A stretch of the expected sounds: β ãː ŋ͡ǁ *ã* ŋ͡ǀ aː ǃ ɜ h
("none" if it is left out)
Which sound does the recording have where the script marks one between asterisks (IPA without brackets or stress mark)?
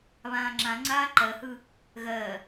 ã